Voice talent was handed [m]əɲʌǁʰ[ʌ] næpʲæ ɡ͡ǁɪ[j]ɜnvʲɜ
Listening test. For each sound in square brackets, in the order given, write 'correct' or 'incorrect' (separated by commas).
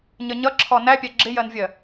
incorrect, incorrect, correct